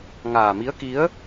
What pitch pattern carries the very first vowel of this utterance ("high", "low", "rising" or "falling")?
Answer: low